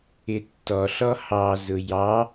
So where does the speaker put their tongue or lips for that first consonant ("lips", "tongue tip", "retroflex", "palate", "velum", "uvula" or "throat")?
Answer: tongue tip